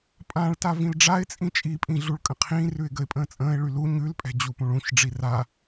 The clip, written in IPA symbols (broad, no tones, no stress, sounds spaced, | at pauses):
pʼ ã ɭ t a v ĩ l ɖ͡ʐ a ɪ̯ t͡sʼ ĩ t͡ʃʼ i pʼ ĩ ɮ u ɭ kʼ ə̃ qʰ ĩː r ʉ ɪ̯ ɡ ə ɪ̯ pʼ ə̃ː t͡sʼ ə̃ː ɪ̯ ɭ y l u ɲ ʉ l pʼ ɛ̤ d͡ʑ u p ũ ɭ ũ ç ɖ͡ʐ i r a